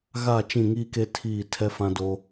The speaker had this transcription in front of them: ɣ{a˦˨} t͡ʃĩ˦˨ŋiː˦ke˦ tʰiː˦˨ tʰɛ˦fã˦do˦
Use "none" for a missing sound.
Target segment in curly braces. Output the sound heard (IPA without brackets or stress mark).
a˦˨